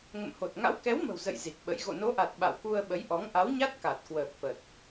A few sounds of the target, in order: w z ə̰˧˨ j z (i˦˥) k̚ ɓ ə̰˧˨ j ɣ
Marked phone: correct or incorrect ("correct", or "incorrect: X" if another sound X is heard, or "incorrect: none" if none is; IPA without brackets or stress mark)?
incorrect: i˨˩